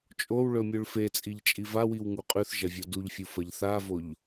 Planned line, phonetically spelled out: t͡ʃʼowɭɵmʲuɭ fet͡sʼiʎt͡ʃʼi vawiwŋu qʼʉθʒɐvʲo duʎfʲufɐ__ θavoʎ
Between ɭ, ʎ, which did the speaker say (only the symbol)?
ʎ